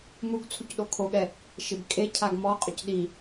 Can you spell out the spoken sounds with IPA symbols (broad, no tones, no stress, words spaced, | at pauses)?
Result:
muɡ t͡sʰucɗokʰoɠɛ | ʃɪbkʼecʰaɡ mɔqʼʊc ɗi